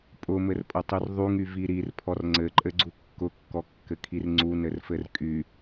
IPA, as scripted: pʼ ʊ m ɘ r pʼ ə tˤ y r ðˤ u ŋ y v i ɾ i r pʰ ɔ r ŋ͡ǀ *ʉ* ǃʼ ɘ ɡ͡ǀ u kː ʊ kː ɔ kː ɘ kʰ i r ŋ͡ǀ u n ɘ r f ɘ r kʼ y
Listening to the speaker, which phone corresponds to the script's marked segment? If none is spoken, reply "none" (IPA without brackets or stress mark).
ɘ